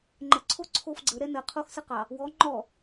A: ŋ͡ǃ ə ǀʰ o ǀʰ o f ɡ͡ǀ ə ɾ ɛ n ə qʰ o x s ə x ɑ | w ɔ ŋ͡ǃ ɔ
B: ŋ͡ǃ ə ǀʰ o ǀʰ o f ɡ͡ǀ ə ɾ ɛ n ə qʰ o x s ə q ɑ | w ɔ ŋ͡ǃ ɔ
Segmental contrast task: B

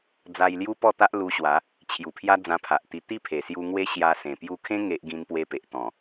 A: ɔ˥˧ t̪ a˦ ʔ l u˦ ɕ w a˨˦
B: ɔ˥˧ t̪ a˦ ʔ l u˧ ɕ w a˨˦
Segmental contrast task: B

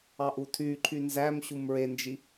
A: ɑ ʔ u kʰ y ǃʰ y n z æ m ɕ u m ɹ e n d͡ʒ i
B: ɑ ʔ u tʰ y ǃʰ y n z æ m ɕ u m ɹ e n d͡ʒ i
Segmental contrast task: B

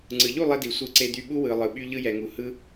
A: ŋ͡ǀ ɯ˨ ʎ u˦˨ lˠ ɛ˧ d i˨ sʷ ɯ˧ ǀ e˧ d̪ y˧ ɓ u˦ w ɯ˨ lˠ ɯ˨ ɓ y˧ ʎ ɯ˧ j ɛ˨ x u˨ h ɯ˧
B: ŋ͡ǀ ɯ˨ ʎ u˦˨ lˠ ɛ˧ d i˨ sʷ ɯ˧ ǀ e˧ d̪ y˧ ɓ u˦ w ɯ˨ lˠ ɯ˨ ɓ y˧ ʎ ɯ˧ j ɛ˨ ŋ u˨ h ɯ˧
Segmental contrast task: B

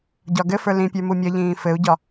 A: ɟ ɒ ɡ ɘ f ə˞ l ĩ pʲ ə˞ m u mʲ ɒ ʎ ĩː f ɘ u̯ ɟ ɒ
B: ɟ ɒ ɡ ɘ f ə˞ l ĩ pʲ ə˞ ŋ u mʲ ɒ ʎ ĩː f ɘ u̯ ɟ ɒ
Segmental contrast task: A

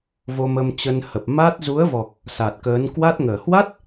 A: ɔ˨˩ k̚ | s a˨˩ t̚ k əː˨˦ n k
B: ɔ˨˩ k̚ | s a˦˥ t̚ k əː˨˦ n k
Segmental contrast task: A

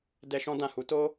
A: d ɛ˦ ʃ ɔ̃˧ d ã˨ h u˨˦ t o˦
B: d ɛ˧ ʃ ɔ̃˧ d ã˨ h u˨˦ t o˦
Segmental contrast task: B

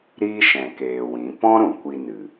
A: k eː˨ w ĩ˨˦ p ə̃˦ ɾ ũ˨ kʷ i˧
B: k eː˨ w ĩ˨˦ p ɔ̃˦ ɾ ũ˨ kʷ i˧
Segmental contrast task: B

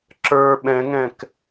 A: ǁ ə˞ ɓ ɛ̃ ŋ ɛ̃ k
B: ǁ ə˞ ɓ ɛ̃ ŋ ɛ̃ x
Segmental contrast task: A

